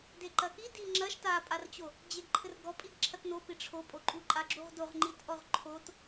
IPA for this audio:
d e ǃ ɐ k i d i ŋ͡ǁ ɐ ʃ t a pʼ a r t͡ɕ o | d͡ʑ e ɡ ǃʰ ɘ r ɡ ɔ pʼ i ɡ ǁʰ ɐ t n o p i ʈ͡ʂʰ o pʼ o ǃʼ u ǃʼ a ɡ͡ǁ u ʁ d o ʁ ŋ͡ǃ i t ʔ ɔ ʁ ǃʰ o t

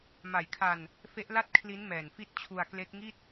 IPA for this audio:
m a˨˩ j kʰ a˧ n | f e˦˥ ʔ l a˥˩ t̚ kʰ l i˦˥ n m ɛː˨˩ n f i˦˥ t̚ t͡ɕʰ u˧ a̯ k l e˦˥ k̚ ŋ i˥˩ t̚

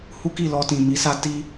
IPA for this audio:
h u˦ k i˦˨ l ɔ˧ t ĩ˨ m i˧ s a˦ t i˦

